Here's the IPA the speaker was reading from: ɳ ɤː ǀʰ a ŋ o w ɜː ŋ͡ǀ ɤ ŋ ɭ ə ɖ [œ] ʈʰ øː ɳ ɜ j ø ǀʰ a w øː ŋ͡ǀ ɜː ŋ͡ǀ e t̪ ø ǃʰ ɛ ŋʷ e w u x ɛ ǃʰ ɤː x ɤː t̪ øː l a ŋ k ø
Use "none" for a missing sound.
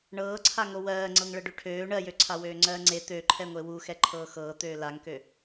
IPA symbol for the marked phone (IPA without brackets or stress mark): ø